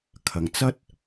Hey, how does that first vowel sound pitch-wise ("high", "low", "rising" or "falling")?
low